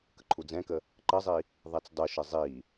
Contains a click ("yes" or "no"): yes